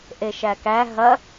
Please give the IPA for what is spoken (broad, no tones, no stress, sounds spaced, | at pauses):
ʔ e ʃ æ k æ ɦ ɐ